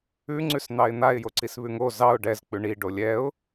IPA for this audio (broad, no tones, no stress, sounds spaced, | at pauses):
ʉ ŋ͡ǀ ʉ s n̪ ɑ ɪ̯ n̪ a ɪ̯ j o ǀ i s β ʉ ŋ o z ɑ ʊ̯ ɖ ɛ z k͡p ʉ ɳ i ɖ o lʲ ɛ ʊ̯